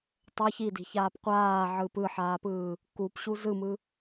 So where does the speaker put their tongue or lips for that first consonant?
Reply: tongue tip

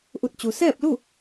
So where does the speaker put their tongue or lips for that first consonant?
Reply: throat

